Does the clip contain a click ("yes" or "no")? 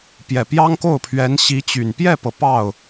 no